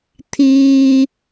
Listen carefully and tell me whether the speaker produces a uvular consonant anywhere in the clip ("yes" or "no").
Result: no